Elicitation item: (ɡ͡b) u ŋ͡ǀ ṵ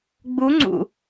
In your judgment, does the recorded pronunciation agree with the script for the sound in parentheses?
yes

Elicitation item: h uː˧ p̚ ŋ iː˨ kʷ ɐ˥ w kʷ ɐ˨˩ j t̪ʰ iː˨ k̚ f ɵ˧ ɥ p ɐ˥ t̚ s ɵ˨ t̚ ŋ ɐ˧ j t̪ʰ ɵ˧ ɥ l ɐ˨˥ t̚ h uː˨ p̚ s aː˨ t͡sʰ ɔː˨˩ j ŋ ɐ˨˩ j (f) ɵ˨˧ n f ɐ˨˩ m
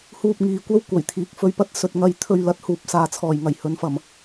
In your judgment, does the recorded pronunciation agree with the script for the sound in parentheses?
no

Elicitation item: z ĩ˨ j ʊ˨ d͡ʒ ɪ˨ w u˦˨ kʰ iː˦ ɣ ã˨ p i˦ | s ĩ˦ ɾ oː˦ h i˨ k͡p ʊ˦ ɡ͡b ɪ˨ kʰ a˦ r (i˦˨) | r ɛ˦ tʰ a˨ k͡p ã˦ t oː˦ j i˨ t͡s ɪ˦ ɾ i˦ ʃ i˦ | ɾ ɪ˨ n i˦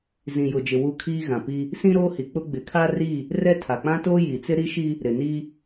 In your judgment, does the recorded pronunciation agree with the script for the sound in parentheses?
yes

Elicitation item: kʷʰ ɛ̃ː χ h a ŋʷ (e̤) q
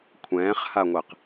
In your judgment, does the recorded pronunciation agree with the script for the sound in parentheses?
no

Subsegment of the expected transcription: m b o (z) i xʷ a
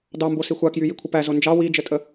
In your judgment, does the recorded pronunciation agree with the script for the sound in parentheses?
no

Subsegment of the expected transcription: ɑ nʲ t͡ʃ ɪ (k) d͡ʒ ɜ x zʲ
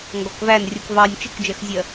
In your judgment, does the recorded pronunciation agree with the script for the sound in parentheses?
yes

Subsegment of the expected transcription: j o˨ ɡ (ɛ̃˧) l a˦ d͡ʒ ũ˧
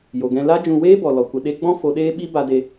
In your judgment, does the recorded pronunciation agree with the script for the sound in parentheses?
yes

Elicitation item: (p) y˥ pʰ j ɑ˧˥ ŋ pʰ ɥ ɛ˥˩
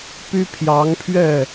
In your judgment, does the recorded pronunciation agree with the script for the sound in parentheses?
yes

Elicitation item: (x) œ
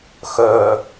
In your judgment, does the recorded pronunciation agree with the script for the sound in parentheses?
yes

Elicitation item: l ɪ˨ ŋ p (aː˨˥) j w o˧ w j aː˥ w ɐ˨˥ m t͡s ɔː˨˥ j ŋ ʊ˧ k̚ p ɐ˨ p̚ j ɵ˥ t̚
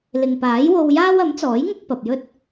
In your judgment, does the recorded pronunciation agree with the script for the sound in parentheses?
yes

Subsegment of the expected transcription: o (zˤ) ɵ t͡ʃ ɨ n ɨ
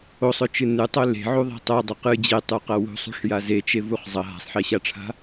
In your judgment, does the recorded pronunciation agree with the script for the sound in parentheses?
no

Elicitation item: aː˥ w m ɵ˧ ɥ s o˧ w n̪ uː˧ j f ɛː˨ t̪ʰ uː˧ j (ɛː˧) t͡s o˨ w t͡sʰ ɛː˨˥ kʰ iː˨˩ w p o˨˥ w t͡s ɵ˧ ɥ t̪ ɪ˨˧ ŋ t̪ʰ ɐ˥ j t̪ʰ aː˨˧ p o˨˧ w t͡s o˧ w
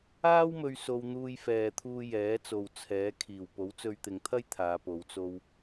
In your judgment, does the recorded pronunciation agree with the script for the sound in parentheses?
no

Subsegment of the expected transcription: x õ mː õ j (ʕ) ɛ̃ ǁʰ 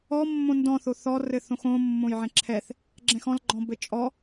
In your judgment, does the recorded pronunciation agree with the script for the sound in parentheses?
yes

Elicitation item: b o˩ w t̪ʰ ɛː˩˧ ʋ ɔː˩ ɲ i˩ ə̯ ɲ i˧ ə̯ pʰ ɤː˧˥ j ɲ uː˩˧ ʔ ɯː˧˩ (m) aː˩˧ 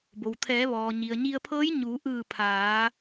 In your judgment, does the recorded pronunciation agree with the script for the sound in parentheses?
no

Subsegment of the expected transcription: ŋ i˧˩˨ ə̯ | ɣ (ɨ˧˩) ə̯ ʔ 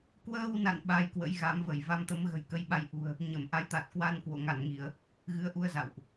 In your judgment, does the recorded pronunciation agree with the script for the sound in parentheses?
no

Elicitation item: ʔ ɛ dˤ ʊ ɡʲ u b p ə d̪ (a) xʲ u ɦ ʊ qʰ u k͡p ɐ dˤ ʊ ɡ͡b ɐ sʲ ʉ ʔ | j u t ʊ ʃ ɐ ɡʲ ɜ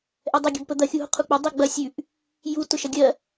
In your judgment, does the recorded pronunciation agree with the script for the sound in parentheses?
no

